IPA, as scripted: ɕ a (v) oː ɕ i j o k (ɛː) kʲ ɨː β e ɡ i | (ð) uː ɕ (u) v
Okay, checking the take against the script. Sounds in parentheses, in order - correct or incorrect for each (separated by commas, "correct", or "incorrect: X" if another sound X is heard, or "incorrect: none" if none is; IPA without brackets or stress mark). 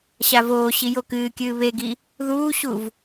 correct, incorrect: ɨː, correct, correct